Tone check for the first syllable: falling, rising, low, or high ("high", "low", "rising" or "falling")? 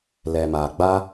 low